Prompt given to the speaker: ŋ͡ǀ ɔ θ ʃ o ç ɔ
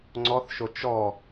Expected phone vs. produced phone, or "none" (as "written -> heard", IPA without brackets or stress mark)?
ç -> t͡ʃ